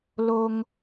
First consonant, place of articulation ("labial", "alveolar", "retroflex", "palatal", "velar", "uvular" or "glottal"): alveolar